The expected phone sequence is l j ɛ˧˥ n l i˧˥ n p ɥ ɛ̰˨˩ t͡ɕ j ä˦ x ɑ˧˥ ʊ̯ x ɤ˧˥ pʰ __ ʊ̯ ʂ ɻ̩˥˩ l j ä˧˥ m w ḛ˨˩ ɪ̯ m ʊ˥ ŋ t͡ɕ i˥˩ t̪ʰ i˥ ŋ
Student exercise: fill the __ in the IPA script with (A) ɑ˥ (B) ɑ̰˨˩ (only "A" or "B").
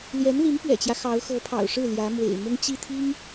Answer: B